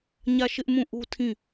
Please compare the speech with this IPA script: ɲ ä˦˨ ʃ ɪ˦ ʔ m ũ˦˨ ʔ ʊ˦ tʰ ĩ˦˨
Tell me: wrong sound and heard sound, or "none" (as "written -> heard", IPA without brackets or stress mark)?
ʊ˦ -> u˦